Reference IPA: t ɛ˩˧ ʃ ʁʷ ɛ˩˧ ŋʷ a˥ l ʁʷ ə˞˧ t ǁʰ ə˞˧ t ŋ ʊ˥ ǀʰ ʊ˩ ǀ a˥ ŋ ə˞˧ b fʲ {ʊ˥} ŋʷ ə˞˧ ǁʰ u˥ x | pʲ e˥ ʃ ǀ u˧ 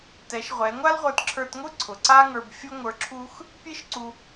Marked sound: correct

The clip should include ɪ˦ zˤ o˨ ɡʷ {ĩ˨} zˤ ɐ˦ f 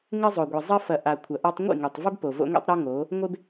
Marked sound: incorrect: i˨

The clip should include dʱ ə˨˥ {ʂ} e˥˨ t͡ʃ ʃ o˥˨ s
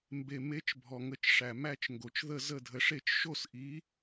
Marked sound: correct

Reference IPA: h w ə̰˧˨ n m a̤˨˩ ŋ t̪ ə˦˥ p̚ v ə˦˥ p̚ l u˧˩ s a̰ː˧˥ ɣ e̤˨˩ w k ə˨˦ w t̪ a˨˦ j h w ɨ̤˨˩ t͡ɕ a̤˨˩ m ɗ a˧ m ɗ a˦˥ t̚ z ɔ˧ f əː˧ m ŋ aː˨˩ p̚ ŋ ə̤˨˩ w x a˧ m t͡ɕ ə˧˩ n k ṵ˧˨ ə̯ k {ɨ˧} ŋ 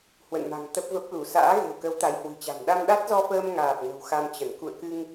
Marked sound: correct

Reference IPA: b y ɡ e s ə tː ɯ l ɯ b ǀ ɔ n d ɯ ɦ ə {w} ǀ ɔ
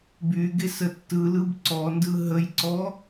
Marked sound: incorrect: j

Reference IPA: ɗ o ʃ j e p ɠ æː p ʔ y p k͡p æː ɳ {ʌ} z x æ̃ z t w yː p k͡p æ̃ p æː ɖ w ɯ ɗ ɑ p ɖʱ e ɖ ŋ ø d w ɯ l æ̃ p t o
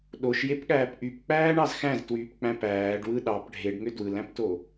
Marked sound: incorrect: ɑ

